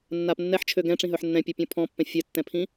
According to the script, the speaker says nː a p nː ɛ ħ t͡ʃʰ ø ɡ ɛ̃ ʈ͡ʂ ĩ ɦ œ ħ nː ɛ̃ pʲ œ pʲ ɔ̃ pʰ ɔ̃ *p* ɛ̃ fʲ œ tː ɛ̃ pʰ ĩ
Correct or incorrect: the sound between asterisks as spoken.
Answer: incorrect: pː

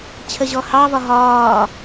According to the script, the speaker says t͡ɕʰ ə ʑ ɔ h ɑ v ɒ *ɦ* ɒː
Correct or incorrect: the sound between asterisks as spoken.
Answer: correct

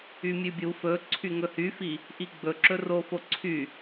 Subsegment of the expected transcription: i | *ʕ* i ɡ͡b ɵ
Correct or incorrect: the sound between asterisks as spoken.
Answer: incorrect: ʔ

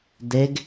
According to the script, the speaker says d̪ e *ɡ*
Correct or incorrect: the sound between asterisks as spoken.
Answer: correct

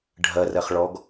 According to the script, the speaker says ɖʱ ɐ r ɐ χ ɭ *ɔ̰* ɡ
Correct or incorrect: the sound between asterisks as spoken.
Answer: incorrect: ɔ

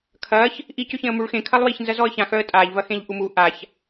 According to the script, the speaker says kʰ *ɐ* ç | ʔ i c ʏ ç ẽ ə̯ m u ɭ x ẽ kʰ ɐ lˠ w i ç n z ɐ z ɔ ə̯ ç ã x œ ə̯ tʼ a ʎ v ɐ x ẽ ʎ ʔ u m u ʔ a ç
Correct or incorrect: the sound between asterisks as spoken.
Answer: correct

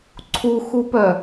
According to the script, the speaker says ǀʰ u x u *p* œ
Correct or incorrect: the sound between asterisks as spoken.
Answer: correct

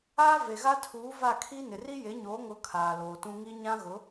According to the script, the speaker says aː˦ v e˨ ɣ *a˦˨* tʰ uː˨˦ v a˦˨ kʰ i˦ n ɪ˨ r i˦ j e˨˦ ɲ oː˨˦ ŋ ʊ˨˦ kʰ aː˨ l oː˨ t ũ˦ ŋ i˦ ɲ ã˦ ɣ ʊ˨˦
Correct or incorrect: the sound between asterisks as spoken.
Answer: incorrect: a˦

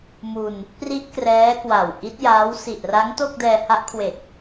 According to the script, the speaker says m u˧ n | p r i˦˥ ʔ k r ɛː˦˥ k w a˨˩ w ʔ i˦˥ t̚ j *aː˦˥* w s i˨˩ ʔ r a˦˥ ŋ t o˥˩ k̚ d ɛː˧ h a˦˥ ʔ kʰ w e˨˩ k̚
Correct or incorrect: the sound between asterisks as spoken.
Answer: correct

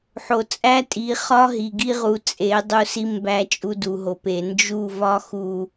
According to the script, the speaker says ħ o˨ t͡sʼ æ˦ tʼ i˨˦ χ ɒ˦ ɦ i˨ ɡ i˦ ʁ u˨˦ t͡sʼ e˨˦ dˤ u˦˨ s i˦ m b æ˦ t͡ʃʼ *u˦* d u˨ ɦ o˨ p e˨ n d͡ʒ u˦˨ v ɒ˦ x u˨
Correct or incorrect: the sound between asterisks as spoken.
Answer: correct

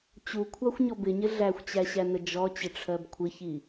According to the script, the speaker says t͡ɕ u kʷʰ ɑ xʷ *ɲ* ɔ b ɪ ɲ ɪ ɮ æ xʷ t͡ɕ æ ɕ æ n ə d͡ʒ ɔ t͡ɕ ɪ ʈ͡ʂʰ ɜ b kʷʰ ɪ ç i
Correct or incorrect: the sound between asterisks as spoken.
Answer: correct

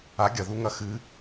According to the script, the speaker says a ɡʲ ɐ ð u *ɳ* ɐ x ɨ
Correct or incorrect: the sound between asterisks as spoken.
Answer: incorrect: ŋ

